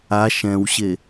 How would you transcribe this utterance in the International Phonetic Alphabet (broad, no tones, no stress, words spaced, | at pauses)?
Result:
a ʃɛ̃wɕe